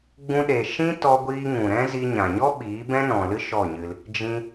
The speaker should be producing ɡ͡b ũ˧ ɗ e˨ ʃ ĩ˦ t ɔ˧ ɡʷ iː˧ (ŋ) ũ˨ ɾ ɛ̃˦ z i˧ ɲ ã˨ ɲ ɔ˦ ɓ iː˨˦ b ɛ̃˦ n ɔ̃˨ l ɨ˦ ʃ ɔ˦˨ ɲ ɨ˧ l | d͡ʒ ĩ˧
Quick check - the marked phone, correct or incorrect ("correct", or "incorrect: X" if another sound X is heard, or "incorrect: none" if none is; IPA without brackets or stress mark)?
correct